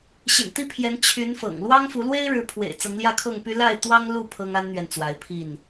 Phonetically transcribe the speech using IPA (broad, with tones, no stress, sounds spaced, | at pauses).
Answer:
ɕ ḭ˨˩ n t̪ i˥˨ pʰ j ɛ˨˦ n t͡ɕʰ y˨˦ n f ɤ̰˨˩ ŋ l w ɑ˦ ŋ f u˨˦ l w e˦ ɪ̯ ɻ ɻ̩˨˦ pʰ w ḛ˨˩ ɪ̯ t͡s ɤ˨˦ ŋ l j ä˥˨ kʰ ɤ˥˨ ŋ p y˦ l a˥˨ ɪ̯ t̪ w ɑ˦ ŋ l u˥˨ pʰ ɤ˦ ŋ a˦ n n̪ ɥ ɛ˨ n t͡s w a˨˦ ɪ̯ pʰ i˥˨ n